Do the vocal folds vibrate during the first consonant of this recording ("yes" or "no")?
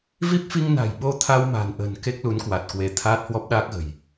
yes